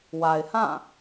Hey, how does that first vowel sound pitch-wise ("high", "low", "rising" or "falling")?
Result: low